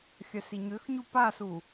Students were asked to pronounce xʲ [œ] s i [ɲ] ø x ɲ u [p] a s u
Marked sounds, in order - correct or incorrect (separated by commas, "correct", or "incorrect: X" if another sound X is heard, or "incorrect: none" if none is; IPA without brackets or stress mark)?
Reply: correct, correct, correct